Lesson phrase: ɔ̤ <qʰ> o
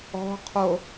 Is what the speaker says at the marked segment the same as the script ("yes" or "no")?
yes